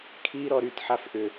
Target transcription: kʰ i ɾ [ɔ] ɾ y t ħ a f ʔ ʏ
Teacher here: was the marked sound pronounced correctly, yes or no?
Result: yes